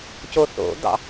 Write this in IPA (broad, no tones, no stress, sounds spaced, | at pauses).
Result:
c o θ o̰ d̪ ɑ̰